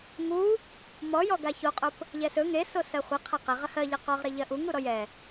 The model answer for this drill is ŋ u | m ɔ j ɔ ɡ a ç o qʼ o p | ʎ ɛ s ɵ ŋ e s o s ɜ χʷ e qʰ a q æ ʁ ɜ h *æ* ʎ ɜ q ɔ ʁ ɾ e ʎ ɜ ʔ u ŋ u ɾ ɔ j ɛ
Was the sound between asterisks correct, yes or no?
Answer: no